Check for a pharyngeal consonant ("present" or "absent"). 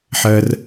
present